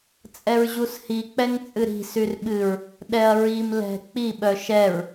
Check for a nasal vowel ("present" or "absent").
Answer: absent